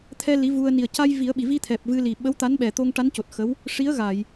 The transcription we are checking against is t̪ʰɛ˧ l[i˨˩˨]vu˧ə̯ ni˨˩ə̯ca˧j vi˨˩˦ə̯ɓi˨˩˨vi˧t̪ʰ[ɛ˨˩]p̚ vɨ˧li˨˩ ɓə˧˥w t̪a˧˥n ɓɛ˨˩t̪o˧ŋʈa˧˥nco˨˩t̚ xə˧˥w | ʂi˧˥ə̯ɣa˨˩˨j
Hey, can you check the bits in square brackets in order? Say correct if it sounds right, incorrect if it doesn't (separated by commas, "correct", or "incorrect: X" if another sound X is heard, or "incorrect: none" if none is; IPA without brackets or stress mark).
incorrect: i˧˥, correct